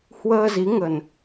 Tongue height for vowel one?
mid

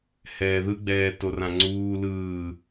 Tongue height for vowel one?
mid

